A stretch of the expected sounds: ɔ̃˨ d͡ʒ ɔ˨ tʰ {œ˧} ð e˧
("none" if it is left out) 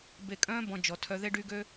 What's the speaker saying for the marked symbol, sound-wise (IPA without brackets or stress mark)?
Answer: œ˧